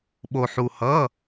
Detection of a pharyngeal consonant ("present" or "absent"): present